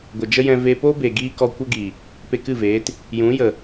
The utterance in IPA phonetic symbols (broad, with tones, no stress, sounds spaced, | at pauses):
ɡʷ ə˨ d͡ʒ ə˦ j ɛ̃˧ v e˧ p o˦ b e˨ ɡ iː˦ k ɔ˧ kʷ ə˦ ɡ i˨ | p e˧ k ɨ˦˨ v eː˨˦ t | j ũ˨˦ j ə˨